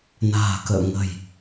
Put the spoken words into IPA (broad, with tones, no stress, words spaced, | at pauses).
na̤ː˨˩kə̰ː˧˨ŋə̤˨˩j